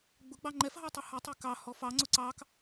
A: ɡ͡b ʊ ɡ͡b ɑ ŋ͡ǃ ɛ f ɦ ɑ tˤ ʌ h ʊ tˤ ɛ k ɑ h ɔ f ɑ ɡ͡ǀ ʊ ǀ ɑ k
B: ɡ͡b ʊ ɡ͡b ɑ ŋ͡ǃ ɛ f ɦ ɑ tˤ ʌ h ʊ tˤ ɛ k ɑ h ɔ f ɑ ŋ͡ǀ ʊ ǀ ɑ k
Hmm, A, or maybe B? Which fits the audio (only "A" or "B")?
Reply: B